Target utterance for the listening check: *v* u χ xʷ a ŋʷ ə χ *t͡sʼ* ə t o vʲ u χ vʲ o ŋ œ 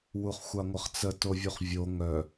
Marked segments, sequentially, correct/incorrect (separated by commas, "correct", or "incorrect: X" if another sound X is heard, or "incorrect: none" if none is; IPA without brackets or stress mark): incorrect: w, incorrect: t͡s